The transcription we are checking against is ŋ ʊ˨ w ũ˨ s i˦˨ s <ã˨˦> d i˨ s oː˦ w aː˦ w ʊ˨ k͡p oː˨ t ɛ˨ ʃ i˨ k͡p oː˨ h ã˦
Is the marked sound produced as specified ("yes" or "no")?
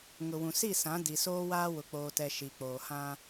yes